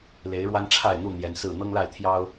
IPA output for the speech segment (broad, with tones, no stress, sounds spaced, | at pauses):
l e˨˦ ɪ̯ ɻ w a˦ n ʈ͡ʂʰ a˥˨ ɪ̯ n̪ u˥˨ n̪ j ɛ˨˦ n s ɹ̩˥˨ n̪ ɤ˦ ŋ l a˥˨ ɪ̯ t̪ʰ j ɑ˦ ʊ̯